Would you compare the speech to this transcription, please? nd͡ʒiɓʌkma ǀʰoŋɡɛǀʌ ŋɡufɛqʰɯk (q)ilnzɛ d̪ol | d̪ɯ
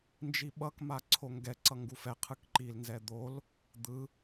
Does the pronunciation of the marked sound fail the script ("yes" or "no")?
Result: yes